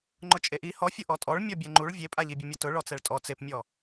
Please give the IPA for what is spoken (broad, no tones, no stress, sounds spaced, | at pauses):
ŋ͡ǃ ʊ t͡ʃʼ e ʔ i h ɔ fʲ ʊ ʔ ɔ tʼ ɔ ɭ mʲ ɔ bʲ ɛ ŋ͡ǃ u ɭ vʲ e pʼ a ʎ i bʲ ʊ mʲ ʊ t ʊ ɭ ɔ t͡s ɛ ɭ tʼ ɔ t͡s e p mʲ ɔ